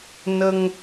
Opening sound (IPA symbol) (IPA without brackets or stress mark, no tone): n